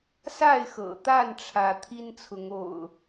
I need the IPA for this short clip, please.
s a˥˨ ɪ̯ x ɤ̰˨˩ t̪ a˥˨ n ʈ͡ʂʰ ä˦ t̪ʰ i˦ n t͡sʰ ʊ˨˦ ŋ o̰˨˩ ʊ̯

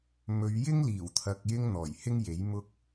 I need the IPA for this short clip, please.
m ɵ˨˧ ɥ j ɪ˥ ŋ l iː˨˩ w t̪ʰ ɐ˨ k̚ j ɪ˧ ŋ n̪ ɔː˨˩ j h ɪ˥ ŋ j e˨˥ j m ʊ˧ k̚

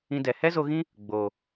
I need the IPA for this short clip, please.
ĩ˧ d ɛ˨ h ɛ˦ z o˧ ɣ ĩ˦ | ɡ͡b oː˨

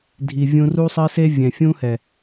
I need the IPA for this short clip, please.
dʱ i˨ vʲ ũ˧ r u˦ sˤ ɘ˦ s e˦ vʲ ɛ̃˨ fʲ ũ˦ h ɛ˨

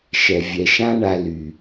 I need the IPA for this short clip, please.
ʃ ɛ˨ vʲ ɛ˨ ʃ ã˦ ɳ a˧ l y˨

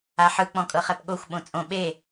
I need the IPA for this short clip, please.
a ħ ɯ k͡p ɔ̃ kʼ ɤ χ ɛ p ɠ o xʷ ɓ õ t͡sʼ õ ɓ e

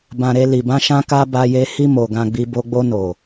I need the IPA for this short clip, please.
b ã˧ ɾ e˧ l i˨ b ã˧ ʃ ã˧ k a˧ b a˧ j e˧ h i˧ m o˨ ɡ ã˧ ɡ͡b i˧ b o˧ ɡ͡b o˧ n o˨

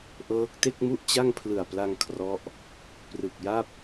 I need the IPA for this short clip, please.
ʔ ɤː˦˥ k̚ t e˥˩ k̚ m u˥˩ ʔ t͡ɕ a˥˩ ŋ pʰ l ɯ˨˩ a̯ p l a˧ ŋ kʰ r ɔ˦˥ ʔ | p r ɯ˨˩ k̚ j a˥˩ p̚

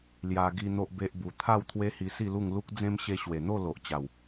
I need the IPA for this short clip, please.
l j a˧ ɡ i˧ n̪ o˦ ʔ b e˦ ʔ b u˧ t̪ʰ a˥˧ w t̪ʰ w e˦ h i˧ s i˥˧ l u˥˧ ŋ l u˦ k̚ d͡z ẽ˦ m ɕ e˧ ɕ w e˨˩ n̪ o˥˧ l o˨ ʔ t͡ɕ a˨˩ w

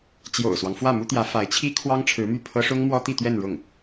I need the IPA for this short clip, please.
t͡ɕ j o̰˨˩ ʊ̯ s w ɑ˦ ŋ f w ä˥˩ m u˥ t̪ j ä˧˥ f a˧˥ ɪ̯ t͡ɕʰ i˥ kʰ w ɑ˥ ŋ ʈ͡ʂʰ ɻ̩˧˥ m y˥˩ pʰ ɤ˥ ʂ ʊ˥ ŋ m w ɔ˥ t̪ i˥˧ t̪ ɥ ɛ˥˧ n ɻ ʊ˥˩ ŋ

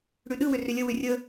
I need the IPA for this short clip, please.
ɽ ʉ ɗ ɯ w ʏ r ʏ lʲ ə w ʏ rʲ ə

